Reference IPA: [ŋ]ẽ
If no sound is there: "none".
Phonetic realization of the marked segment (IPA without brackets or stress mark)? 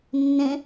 nː